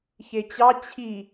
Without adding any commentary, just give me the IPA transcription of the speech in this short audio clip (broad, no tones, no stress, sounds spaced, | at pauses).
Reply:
ç e t͡ɕ ɑ t͡ɕʰ i